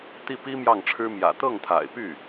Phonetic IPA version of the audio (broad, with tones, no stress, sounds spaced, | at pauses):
t̪ i˥˩ p i˥ m j ɑ˥˩ ŋ ʈ͡ʂʰ ɻ̩˥ m j ä̰˨˩ t̪ ɤ˥˩ ŋ t̪ʰ a̰˨˩ ɪ̯ p y˥˩